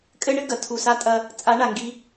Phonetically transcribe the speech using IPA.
kʼɘ˦ ɳɘ˦ɡɐ˨ tʰu˨sa˧tʼɐ˧ | t͡sʼa˨˦ɳa˨ŋɡi˧

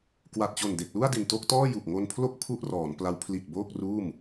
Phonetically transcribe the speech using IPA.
kwa˨˩t̚t͡ɕo˨˩nde˨˩k̚ lu˥˩a̯di˨˩nto˥˩k̚tɔː˥˩ ju˨˩k̚ŋo˧npʰlo˥˩k̚ pʰu˥˩ʔrɔː˩˦npla˦˥w pʰli˨˩t̚ boː˥˩k̚ruː˥˩m

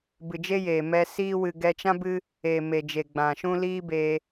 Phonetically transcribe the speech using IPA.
bɨ˨d͡ʒe˦jeː˨mɛ˧ siː˦wɨ˧ ɡɛ˧t͡ʃã˦bɨ˦ | eː˨me˨d͡ʒe˨ ɡ͡bã˨ʃũ˦ liː˦be˧

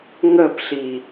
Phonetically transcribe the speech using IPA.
ŋəpɬi

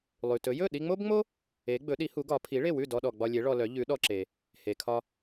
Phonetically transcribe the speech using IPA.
lˠʉ˩tɵ˩˥ jɵ˥˩ɗi˧ŋ͡mo˥bŋ͡mo˥ | e˩˥ ɡ͡bɵ˩˥ɗi˩˥hu˩˥ɡɒ˩˥ pʰi˩˥ɭe˥˩wʉ˥˩ dɔ˧ɗɔ˩ ɡ͡bɒ˧lʲe˩˥ ɭɔ˧lœ˩˥ ʎʉ˩˥ ɗɔ˧ǁe˩ | he˩kʰɒ˧

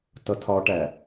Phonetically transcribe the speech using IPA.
tʌtʰɒʈæ

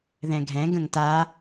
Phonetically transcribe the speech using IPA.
ðɛ̃ɡʱɛ̃ ɡə̃ŋta

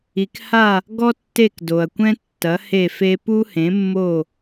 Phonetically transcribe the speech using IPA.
i˨kha˦˨ | ɡɔ˦tːe˦˨kdo˨ɐ̯kʷɛ̃˦ tːɐ˨˥he˦˨fe˦ pu˦hẽ˨˥mːo˦˨

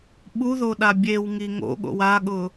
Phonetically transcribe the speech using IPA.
ɓuðoɗa bʲewŋi ŋo̰ɠo̰w aɠʊ

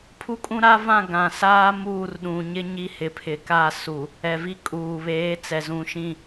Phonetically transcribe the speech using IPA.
pʰu˦kʼũ˦ɾa˦vã˦˨ ɡã˨saː˦ muː˦˨rɗũ˨ɲɪ˦ ɲi˦hɪ˨ pʰɪ˨ka˦˨su˨ | ɛ˨vi˦kʼuː˨βeː˨˦ t͡sɛ˨zũ˨ʃĩ˦˨

